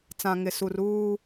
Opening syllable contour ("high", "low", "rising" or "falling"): low